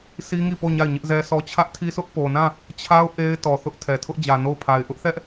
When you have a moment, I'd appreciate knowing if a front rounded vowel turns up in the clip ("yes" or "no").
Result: no